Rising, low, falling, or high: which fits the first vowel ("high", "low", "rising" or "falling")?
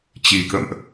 low